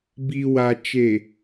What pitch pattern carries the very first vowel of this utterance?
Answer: low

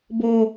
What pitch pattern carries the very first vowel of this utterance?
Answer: low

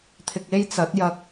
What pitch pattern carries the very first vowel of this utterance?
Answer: low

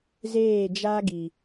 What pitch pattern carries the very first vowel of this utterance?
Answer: falling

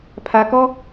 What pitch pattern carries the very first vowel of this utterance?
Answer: low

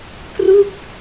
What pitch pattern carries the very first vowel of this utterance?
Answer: falling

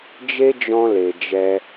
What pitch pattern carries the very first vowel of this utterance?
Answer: high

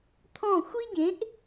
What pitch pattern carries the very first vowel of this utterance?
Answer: falling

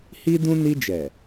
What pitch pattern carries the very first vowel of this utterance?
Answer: high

